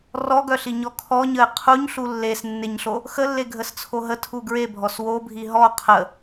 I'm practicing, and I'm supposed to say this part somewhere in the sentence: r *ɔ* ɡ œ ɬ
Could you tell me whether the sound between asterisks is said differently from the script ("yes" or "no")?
no